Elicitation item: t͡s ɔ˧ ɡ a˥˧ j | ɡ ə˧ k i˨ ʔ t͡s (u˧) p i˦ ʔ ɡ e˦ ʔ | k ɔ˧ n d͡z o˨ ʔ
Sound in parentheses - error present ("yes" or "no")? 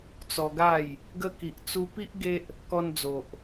no